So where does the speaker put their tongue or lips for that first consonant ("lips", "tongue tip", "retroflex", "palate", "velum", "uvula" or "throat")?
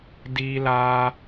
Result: tongue tip